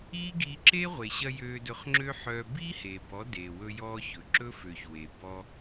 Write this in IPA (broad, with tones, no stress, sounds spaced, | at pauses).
iː˦ ɡ iː˧ ǁ e˦ ʁʷ e˨ ɕ ɐ˧ j øː˧ d ɵ˧ χ ŋ͡ǁ ø˦ ħ œ˧ b iː˦ h eː˨ b ɔ˨˦ d eː˨ w ɵ˧ j ɔː˧ ç ɵ˨ ǁ ɵ˦ f ø˨ ç w e˨ b ɔ˧